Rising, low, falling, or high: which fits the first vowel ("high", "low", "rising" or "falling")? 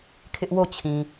high